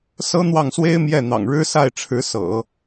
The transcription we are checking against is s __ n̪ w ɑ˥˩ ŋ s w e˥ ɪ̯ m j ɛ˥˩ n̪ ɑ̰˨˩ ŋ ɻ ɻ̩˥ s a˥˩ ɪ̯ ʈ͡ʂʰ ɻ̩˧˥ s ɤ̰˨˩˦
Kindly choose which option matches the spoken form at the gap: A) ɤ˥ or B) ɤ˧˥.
A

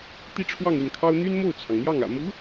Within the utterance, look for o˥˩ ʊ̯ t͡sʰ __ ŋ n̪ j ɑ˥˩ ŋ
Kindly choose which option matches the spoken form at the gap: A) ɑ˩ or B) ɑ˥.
A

